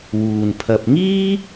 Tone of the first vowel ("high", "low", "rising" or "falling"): low